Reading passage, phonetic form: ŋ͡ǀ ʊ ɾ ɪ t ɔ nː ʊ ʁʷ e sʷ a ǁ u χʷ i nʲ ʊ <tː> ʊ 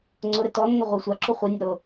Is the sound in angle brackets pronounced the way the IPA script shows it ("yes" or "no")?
no